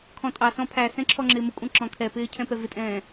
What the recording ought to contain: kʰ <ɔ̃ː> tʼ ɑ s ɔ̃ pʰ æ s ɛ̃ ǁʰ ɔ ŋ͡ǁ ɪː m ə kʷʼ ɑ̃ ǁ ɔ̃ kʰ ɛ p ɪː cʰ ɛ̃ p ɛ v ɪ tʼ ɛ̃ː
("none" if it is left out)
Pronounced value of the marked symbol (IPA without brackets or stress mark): ɔ̃